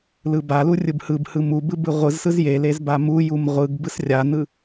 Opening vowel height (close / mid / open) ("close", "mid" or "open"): close